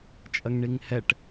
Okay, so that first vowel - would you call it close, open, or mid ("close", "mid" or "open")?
open